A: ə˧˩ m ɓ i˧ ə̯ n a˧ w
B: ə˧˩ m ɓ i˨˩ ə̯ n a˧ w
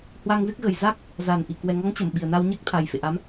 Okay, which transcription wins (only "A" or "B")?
B